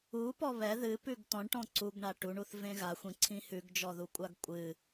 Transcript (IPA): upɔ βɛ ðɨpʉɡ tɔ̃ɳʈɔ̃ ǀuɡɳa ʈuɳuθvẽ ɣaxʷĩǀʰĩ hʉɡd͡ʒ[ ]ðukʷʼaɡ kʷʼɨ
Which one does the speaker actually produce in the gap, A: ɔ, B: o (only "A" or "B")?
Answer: A